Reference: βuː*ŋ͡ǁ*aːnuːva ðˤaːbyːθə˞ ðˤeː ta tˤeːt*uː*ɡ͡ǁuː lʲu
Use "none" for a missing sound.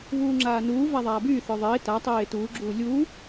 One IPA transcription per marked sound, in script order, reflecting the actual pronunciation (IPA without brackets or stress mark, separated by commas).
ŋ͡ǁ, uː